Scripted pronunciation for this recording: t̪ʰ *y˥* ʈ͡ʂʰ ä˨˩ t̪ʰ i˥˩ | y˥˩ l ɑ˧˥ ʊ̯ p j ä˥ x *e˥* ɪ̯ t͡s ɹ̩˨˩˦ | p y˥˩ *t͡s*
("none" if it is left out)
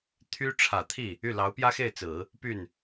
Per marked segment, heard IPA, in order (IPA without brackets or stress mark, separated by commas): y˥, e˥˩, n